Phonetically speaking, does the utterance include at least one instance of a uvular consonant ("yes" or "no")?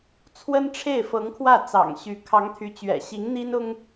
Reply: no